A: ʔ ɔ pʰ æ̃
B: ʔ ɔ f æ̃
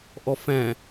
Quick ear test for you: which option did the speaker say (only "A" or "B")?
B